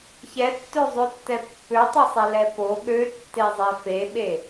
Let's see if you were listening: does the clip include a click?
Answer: no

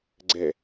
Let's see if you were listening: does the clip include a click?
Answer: yes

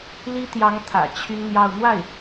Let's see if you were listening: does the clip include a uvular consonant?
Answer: no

